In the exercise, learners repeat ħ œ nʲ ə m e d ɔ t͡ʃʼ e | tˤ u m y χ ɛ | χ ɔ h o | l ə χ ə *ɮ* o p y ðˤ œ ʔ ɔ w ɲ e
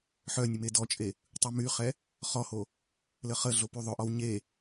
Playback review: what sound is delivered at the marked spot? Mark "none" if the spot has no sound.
ɮ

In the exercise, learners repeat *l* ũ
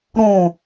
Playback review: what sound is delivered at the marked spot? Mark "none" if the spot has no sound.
ɾ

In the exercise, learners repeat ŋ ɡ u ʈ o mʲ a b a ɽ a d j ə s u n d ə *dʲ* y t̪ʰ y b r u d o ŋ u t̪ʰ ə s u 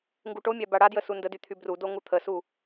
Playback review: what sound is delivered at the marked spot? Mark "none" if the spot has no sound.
d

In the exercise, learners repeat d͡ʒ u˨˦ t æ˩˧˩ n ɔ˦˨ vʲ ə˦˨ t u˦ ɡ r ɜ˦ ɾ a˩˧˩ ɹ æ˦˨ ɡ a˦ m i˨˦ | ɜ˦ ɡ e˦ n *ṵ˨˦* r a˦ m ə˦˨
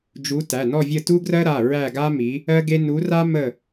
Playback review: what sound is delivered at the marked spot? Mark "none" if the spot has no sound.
u˨˦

